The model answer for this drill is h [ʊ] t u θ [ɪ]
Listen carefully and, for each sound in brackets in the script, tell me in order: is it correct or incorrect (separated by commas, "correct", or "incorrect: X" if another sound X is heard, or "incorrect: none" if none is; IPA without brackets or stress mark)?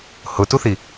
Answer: correct, incorrect: i